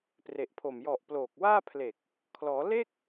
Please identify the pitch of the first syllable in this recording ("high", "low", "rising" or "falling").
low